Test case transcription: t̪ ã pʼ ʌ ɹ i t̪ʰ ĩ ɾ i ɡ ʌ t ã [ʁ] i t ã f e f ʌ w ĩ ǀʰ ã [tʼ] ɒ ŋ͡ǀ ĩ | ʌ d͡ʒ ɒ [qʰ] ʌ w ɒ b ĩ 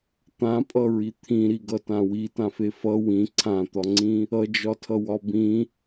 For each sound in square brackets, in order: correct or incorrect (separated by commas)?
incorrect, incorrect, incorrect